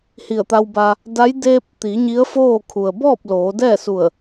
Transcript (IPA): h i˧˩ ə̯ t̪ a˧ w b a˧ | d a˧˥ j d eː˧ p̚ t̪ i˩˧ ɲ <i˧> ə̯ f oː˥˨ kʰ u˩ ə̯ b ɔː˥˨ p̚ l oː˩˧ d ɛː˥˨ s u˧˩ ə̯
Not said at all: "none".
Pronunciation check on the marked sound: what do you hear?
i˧˥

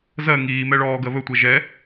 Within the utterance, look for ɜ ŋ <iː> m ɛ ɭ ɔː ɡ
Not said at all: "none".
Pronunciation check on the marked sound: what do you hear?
iː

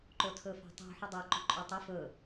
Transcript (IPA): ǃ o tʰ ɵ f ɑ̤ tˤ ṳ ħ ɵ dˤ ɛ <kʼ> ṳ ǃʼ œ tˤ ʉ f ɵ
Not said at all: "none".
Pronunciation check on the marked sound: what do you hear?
ǃ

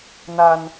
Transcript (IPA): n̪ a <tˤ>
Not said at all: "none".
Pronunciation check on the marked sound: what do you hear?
n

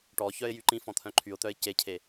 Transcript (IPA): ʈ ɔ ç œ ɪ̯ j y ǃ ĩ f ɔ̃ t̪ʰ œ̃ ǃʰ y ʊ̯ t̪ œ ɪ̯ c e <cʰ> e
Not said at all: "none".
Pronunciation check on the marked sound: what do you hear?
cʰ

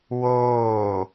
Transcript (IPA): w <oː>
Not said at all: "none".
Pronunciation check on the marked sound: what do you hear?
oː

